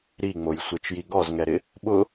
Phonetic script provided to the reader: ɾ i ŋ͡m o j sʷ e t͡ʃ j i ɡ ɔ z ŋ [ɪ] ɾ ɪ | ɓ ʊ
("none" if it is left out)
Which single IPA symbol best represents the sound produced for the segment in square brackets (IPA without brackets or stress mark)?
ɛ